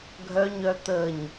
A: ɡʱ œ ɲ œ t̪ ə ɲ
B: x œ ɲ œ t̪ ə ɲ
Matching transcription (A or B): A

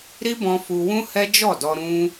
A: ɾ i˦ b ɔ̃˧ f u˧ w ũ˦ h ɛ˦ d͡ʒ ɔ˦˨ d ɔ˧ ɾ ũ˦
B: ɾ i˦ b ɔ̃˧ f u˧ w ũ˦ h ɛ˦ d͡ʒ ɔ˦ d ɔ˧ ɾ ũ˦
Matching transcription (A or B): A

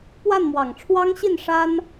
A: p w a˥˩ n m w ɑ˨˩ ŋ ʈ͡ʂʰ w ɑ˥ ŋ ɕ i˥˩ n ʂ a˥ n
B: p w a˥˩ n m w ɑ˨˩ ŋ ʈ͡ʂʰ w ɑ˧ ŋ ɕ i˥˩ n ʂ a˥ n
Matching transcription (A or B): A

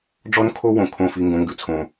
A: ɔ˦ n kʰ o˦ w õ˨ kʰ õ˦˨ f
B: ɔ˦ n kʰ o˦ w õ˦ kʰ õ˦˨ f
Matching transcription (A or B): A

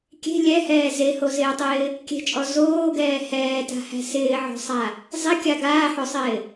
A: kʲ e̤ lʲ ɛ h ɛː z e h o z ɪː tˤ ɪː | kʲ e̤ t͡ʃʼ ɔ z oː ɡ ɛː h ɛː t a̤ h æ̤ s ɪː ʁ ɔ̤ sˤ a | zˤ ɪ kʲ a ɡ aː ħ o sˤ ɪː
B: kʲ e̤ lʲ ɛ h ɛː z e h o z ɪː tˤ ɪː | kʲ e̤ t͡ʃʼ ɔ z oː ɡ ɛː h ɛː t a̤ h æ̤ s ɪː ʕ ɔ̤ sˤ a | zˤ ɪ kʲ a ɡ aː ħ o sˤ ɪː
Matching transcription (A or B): B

